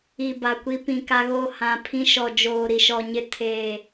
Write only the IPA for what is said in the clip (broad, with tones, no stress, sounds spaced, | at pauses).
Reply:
i˨ b a˨ kʷ i˦ p ĩ˨ k a˦ ɣ o˦˨ h ã˨ pʰ ĩ˦ ʃ ɔ˨ d͡ʒ oː˨ ɾ i˨ ʃ ɔ˨ ɲ ɪ˦ tʰ eː˨